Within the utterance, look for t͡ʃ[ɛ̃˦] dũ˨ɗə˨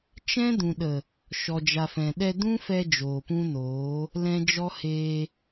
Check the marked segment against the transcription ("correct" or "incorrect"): correct